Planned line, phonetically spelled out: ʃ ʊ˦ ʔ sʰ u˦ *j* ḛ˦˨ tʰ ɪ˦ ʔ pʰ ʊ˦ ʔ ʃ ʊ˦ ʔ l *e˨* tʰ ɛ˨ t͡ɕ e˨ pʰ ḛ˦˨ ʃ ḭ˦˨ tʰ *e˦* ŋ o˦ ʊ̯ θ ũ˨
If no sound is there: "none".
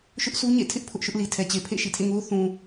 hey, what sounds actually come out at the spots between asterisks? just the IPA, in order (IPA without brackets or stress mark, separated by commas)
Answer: ɲ, i˨, ḛ˦˨